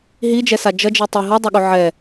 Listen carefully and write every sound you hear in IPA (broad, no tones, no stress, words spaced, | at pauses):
ɦid͡ʒɛsa d͡ʒʌd͡ʒi tˤi ɦʌdˤoɠo ʕɛ